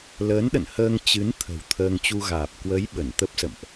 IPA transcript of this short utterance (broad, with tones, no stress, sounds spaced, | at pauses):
l əː˨˦ n ɗ ə̰˧˨ n h əː˧ ŋ t͡ɕ ɨ˨˦ n t̪ʰ ə̤˨˩ w t̪ʰ əː˧ ŋ t͡ɕ u˧ ɣ aː˨˩ p̚ k w ə˨˦ j ɓ ə˧˩ n t̪ ə˦˥ p̚ s ə̰˧˨ m ʔ